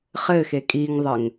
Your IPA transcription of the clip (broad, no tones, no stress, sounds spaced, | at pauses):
χ ɘ x e kʼ i ŋ ðˤ ə ŋ